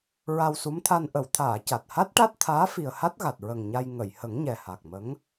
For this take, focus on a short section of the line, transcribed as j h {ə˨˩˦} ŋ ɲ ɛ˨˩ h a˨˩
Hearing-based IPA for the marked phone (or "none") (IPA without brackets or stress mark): ə˨˩˦